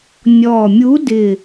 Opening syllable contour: low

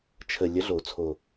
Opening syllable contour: low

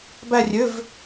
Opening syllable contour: falling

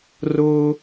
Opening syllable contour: high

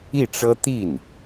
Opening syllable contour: falling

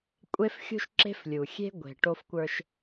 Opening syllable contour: high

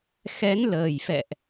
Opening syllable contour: rising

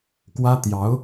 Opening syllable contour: high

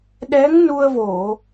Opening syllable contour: rising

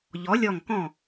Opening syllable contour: rising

